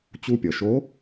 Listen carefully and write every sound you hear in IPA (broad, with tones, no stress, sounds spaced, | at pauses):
t͡ɕ u˧ pʲ ʌ˩ ʃ o˧˥